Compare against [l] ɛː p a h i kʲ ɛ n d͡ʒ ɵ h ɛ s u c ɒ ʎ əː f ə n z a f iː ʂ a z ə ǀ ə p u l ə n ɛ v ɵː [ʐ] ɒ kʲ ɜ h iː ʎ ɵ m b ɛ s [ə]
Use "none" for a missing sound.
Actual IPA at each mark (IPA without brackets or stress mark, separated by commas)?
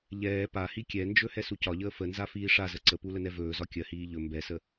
ʎ, z, ə